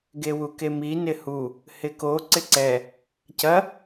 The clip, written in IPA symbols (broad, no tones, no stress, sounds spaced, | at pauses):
ɡ e w u k e m i n ɪ h u | h ɪ k o ǀ ɪ ǀ ɛ | c ɐ